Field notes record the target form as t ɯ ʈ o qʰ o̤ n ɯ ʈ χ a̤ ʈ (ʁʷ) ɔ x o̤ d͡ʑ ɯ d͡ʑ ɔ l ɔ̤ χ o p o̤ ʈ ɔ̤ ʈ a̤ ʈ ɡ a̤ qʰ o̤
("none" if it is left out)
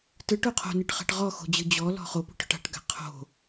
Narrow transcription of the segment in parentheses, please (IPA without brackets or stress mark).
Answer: ʁ